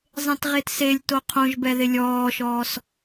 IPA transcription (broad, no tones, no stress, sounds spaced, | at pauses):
zˤ ẽ t ʁ e t s e lʲ t o qʰ õ ʒ b ɛ ð ɪ lʲ ɔː ʃ ɔː s